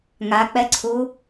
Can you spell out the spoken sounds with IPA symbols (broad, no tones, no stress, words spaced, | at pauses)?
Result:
ŋak͡pɛǀʰu